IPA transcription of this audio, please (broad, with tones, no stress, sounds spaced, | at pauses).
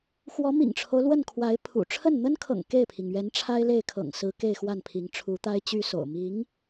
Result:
x w ɔ˧˥ m ḭ˨˩ ŋ ʈ͡ʂʰ o˦ ʊ̯ l w ə˥˩ n kʰ w a˧˥ ɪ̯ pʰ ṵ˨˩ ʈ͡ʂʰ ə˥˩ n n̪ ə˥ n kʰ ɤ̰˨˩ ŋ k e˥˩ ɪ̯ pʰ i˩ ŋ ɥ ɛ˧˥ n ʈ͡ʂʰ a˥ ɪ̯ l e˥˩ ɪ̯ kʰ ɤ̰˨˩ ŋ s ɹ̩˧˥ k e˥˧ ɪ̯ x w a˥˩ n pʰ i˧˥ ŋ ʈ͡ʂʰ u˧˥ t̪ a˥ ɪ̯ t͡ɕ y˥ s o̰˨˩ ʊ̯ m i˧˥ ŋ